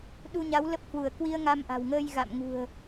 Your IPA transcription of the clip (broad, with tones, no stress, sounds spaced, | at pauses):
ɗ u˧ ɲ a˨˦ w l ə˦˥ p̚ h w u˧˩ ə̯ k w i˧ ə̯ ŋ a˧ m ʔ a̤˨˩ w ŋ əː˧ j ɣ a̰˧˨ m ŋ ṳ˨˩ ə̯